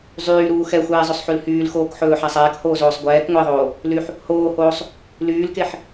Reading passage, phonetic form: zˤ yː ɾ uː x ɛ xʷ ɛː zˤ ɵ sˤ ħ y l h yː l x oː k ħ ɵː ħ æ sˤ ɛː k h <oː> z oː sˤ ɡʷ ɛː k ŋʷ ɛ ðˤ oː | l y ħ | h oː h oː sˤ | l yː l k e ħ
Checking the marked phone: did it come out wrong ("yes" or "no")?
no